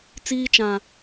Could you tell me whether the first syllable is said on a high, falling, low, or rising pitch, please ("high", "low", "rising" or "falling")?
high